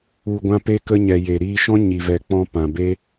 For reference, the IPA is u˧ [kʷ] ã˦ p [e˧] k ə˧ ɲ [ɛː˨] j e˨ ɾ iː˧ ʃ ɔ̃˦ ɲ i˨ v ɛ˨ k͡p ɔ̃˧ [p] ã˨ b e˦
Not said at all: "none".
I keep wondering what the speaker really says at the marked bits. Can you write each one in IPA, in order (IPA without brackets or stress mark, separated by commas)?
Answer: ɡʷ, e˧, ɛ˨, p